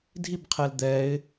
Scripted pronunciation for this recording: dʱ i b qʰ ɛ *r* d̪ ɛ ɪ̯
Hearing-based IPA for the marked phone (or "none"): l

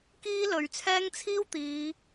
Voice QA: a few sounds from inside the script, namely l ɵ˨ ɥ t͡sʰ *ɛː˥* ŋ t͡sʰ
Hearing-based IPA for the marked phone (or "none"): ɛː˥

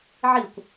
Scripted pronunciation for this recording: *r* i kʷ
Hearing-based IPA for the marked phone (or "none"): ʕ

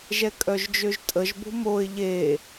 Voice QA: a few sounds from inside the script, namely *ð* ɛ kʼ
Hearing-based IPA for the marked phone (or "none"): ʒ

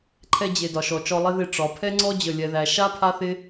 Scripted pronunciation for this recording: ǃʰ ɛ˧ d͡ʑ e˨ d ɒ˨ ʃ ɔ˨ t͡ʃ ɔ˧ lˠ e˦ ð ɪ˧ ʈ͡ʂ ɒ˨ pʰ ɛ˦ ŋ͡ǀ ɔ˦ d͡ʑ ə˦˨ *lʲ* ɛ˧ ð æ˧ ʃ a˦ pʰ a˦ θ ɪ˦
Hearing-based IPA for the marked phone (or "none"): lʲ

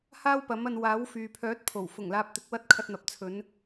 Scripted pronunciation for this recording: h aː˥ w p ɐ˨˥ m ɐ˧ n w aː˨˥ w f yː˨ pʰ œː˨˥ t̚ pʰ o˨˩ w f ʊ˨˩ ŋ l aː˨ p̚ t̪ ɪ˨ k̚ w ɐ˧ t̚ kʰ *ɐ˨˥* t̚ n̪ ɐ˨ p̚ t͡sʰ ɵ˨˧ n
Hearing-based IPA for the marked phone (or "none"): ɐ˧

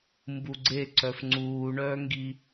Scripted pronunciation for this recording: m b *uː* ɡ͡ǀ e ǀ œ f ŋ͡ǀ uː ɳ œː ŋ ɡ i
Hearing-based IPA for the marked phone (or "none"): u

